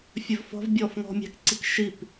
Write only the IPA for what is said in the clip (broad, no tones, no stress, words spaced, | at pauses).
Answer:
fʲɵvfɔ̤vbʲɔːf ŋɔ̤mʲæ̤kǀik ʃip